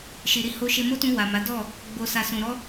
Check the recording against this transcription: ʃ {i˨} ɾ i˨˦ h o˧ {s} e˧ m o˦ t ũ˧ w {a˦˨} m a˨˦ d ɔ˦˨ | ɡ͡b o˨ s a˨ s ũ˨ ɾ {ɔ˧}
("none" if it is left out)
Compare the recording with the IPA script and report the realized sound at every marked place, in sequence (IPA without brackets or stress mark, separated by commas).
i˨, ʃ, a˨, ɔ˧